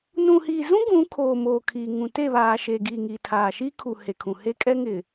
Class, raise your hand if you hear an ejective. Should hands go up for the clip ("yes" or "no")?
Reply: yes